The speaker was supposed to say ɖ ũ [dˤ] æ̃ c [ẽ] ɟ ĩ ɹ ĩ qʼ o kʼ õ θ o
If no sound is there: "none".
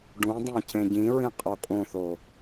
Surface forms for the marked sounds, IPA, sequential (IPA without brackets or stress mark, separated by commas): dˤ, ẽ